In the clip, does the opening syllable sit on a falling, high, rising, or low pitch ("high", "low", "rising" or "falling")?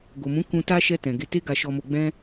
low